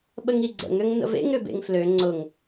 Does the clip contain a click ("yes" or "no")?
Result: yes